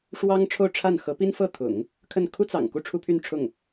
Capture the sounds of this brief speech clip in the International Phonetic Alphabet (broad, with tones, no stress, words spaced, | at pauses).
ʂwɑ˥ŋʈ͡ʂʰo˥˧ʊ̯ʈ͡ʂʰa˥˩n xɤ˧˥pi˥n fɤ˥˩ t̪ʰʊ̰˨˩˦ŋ | kʰə˥˩n kʰu˥t͡sɑ̰˨˩ŋ ku˥˩ʈ͡ʂʰu˥pʰy˥˧n ʈ͡ʂʰʊ˥˩ŋ